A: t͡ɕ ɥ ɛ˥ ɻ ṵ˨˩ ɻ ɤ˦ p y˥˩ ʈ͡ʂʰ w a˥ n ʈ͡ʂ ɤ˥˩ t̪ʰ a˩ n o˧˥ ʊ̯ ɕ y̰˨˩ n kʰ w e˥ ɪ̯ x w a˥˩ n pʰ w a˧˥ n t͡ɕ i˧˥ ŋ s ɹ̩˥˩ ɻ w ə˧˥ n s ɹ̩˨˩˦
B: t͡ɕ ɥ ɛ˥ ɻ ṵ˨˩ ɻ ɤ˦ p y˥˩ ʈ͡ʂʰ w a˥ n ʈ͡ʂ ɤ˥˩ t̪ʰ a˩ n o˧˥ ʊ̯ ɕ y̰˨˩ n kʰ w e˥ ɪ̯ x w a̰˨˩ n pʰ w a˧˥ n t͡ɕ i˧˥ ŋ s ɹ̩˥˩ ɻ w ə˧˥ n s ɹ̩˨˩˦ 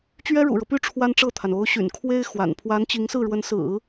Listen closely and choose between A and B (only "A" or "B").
B